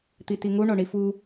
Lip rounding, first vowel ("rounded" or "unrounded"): unrounded